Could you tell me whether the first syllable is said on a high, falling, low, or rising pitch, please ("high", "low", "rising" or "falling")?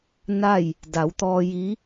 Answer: falling